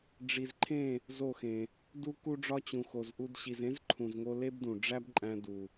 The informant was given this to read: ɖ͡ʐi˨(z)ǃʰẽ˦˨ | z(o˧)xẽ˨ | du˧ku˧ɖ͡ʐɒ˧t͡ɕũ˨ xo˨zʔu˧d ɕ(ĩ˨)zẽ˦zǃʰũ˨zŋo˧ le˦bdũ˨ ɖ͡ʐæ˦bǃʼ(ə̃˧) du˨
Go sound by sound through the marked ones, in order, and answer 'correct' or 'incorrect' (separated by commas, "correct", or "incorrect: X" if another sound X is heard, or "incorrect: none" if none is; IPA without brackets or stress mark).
correct, incorrect: o˦˨, incorrect: i˨, incorrect: æ̃˧